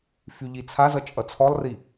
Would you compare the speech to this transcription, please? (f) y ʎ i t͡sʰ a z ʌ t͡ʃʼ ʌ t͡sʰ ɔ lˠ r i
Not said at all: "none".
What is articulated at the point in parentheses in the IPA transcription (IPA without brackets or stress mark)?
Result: f